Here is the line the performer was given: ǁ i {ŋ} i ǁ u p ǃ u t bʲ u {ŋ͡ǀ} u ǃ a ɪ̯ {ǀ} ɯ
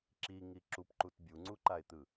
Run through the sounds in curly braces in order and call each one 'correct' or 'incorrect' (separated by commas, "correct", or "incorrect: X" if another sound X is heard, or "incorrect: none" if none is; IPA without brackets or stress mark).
correct, correct, incorrect: t̪